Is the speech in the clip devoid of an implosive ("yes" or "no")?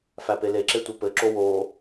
yes